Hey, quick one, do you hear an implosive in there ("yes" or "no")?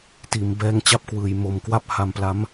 no